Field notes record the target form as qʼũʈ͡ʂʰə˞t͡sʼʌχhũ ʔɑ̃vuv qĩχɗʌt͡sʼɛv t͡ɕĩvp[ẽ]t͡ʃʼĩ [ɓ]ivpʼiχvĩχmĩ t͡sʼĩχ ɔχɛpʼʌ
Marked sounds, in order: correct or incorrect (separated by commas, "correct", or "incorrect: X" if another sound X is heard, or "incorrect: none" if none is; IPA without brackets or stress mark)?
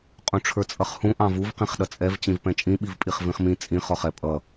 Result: incorrect: ɛ̃, correct